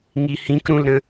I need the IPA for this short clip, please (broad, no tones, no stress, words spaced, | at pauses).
ŋihĩk ɾũlɾə̃